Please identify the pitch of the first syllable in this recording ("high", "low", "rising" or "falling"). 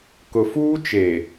low